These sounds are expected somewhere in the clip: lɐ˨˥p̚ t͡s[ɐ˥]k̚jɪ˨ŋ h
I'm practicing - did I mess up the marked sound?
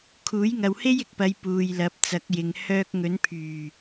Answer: yes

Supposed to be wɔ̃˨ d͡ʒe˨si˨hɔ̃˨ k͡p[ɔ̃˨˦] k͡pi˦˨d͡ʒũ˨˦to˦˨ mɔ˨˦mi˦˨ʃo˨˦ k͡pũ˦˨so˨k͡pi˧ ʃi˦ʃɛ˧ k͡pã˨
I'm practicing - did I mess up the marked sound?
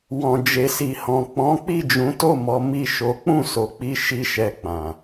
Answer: no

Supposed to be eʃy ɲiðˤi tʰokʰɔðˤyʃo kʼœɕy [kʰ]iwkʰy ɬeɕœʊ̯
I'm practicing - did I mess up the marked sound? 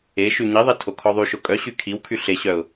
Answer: no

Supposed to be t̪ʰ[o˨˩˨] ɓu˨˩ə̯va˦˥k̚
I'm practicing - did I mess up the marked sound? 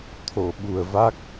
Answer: no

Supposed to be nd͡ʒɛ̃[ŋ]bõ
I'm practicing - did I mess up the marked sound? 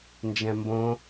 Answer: yes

